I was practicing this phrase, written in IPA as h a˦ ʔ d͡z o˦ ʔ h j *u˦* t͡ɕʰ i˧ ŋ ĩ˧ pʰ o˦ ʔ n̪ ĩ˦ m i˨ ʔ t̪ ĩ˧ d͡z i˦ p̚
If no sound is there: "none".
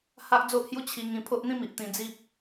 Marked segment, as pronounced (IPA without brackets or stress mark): u˦